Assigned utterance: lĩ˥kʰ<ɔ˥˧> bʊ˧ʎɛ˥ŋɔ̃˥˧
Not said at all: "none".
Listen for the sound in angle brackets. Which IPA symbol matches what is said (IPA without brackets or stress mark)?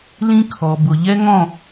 ɔ˧